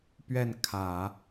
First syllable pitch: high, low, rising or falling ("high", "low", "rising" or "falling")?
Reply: falling